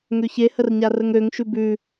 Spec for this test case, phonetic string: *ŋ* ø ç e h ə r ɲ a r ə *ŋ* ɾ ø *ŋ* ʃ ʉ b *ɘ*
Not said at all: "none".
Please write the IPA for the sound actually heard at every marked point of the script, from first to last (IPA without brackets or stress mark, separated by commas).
ŋ, ŋ, ŋ, ʉ